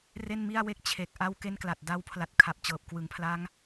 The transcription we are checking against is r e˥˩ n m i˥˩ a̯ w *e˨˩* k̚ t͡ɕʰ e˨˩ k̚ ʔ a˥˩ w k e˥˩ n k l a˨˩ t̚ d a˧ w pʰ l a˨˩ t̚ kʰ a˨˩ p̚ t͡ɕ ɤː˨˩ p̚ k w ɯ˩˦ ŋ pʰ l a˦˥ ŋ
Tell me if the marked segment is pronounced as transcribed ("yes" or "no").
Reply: no